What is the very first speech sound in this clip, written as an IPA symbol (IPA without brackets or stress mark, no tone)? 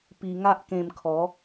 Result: p